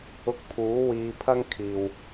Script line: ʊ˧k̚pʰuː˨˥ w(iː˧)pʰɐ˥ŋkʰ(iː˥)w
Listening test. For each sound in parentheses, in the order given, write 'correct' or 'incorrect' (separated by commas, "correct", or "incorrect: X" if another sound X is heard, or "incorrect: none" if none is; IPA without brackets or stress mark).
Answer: correct, incorrect: iː˨